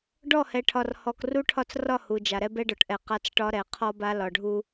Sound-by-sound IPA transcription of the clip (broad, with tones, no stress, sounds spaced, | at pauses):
ɖ ɔ˦˨ h ɛ˨ ʈʰ ɒ˨ r h ɔ˨ k r u˦ ʈʰ ɒ˦ t͡s r ɒ˦˨ h u˨ d͡ʒ a˨ ɾ ɛ˦ b ɛ˦ ɖ ɔ˨ ʈ ʔ ɛ˨ q a˦ t͡s ʈ ɒ˦ ɾ ɛ˨˦ qʰ ɔ˦ b a˦ l ɒ˨ ɖʱ u˦